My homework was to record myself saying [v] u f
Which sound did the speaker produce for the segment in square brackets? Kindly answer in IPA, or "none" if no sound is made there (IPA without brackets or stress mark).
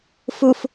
f